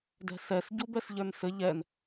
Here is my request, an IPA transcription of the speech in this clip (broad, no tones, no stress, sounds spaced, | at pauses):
d ɛ̤ s ɛ s ɟ u b ɛ s ʎ ə˞ n s ɘ ʎ ɛ n